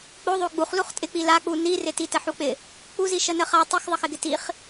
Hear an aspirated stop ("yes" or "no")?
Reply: no